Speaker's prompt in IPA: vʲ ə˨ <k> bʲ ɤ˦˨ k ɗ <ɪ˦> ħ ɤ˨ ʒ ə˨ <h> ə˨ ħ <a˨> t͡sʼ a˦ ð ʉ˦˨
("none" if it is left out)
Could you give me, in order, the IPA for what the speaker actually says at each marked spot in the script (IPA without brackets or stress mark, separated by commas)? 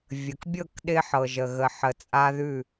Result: k, ɪ˦, ɣ, ə˨